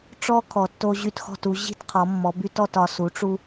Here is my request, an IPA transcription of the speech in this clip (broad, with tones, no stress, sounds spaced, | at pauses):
ʈ͡ʂ ɔ˦ kʰ ɔ˩˧ tː o˦ ʑ y˦˨ t x ɔ̤˦˨ t u˩˧ ʑ i̤˦˨ t qʰ ɔ˩˧ mː ɔ˩˧ b y˦ t ɔ˦˨ t ɒ˩˧ s u˩˥ ʈ͡ʂ u˦